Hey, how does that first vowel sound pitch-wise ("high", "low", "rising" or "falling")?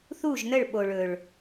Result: falling